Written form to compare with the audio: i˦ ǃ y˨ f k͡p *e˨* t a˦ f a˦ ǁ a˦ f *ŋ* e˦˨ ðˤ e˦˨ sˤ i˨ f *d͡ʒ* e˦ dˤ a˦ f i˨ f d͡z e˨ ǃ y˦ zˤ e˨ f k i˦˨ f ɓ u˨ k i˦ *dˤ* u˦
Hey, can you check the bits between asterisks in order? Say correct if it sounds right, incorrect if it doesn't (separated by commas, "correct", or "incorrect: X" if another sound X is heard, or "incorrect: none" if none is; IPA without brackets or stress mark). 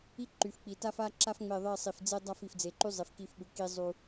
incorrect: i˨, incorrect: ŋ͡m, incorrect: d͡z, incorrect: zˤ